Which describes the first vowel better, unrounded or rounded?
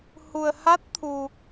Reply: rounded